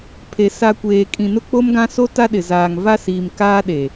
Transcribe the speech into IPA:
pʰ e˨ s a˨ kʷ eː˨ kʼ ĩ˨ n ʊ˦ k͡p o˦ m ɡ ã˦ s o˦ t a˦ ɗ ɪ˨ z aː˨ ŋ v a˦ s iː˨ m k aː˦ ɗ e˨

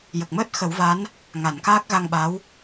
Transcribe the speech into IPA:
j ə˨˩ k̚ m əː˦˥ t̚ x ə˨˩˦ w v a˧˥ n | ŋ a˨˩˨ n k aː˦˥ k̚ ɣ a˧ ŋ ɓ a˧˥ w

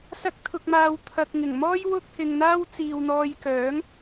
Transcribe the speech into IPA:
s ɐ˧ k̚ t̪ʰ ʊ˨ k̚ m aː˨ w t̪ʰ ɐ˨ k̚ ŋ ɪ˨˩ ŋ m ɔː˥ j w ʊ˥ k̚ h ɪ˨ ŋ n̪ aː˥ w t͡s iː˨ w n̪ ɔː˧ j k œː˨˥ ŋ

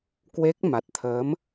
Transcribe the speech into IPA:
k w e˦˥ k̚ m a˨˩ t̚ t̪ʰ əː˨˦ m

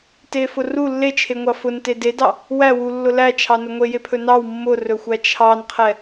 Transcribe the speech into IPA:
t e f ʊ r u lː e t͡ʃʰ e ŋʷ ɑ f ʊ n t e d e d ɑ | w æ w u lː ʊ l æ t͡ʃʰ ɑ n ʊ ŋʷ e j e pʰ ɵ n ɑ w mː ʊ r ɵ xʷ æ t͡ʃʰ ɑ n qʰ ɛ

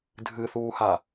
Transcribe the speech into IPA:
dʱ ɨ θ uː h a

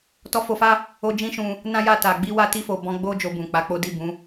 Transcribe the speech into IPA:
t ɔ˧ f o˧ f a˦ | o˧ d͡ʒ ĩ˦ ʃ ũ˧ | n ã˦ j a˦˨ t a˨ ɡ͡b i˧ w a˧ t i˧ f o˨ b ɔ̃˧ ɡ͡b o˦ d͡ʒ o˧ b ũ˨ k͡p a˨˦ k͡p o˦ d i˦˨ b ũ˨˦

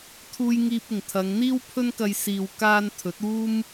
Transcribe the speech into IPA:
t̪ʰ uː˧ j ŋ iː˧ p̚ ɪ˨˩ ŋ t̪ʰ ɐ˨˧ ŋ n̪ iː˥ w pʰ ɵ˥ n k ɐ˧ j s iː˨ w k aː˧ n t̪ʰ ɵ˨˥ t̚ uː˥ m

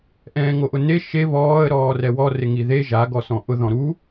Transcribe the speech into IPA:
ʔ ɛ̃ː ŋ o ʔ ʊ n e ʃ e β ɔː ə̯ ɾ ɔː r ɛ w ɔ r ɪ ŋ i ð e ʒ a ɡ ɔ s ɔ̃ ʔ ʊ ð ɔ̃ ɾ u

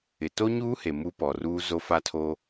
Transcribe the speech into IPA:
ɪ˨ t o˦ ɲ uː˦ h e˨ m u˦ p ɔ˨ r uː˦ z o˦ f a˦ tʰ o˦

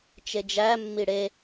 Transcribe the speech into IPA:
t͡ʃ e d͡ʒ æ mː i ɽ e

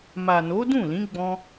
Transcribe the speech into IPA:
m a˨ n o˨˦ d ũ˦˨ l ĩ˨˦ ɡ͡b ɔ̃˧

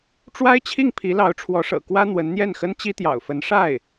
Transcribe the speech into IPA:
ʈ͡ʂ w a˥ ɪ̯ t͡ɕʰ i˥˩ ŋ pʰ i˧˥ l ɑ˧˥ ʊ̯ ʈ͡ʂʰ w ɔ˧˥ ʂ ɤ̰˨˩ k w ä˥ n̪ w ə˧˥ n n̪ j ɛ˥˩ n x ə˥ n t͡ɕ i˥ t̪ j ɑ̰˨˩ ʊ̯ f ə˧˥ n ʂ a˥˩ ɪ̯

